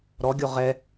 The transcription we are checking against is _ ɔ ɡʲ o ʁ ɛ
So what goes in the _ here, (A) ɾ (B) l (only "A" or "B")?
A